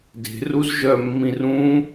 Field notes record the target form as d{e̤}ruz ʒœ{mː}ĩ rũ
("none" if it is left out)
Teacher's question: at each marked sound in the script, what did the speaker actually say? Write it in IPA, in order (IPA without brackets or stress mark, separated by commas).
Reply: e̤, mː